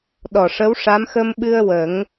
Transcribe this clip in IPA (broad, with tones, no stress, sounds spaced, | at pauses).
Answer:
ɗ ɔ˨˩ ʂ ə˧˥ w ʂ a˧˥ m x ə˧ m ɓ ɨ˧ ə̯ w ə˨˩˦ ŋ